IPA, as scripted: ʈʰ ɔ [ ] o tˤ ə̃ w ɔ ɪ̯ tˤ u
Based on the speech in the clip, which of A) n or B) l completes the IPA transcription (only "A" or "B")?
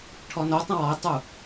A